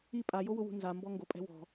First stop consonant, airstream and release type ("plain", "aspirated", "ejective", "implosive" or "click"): ejective